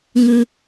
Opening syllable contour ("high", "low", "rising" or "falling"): high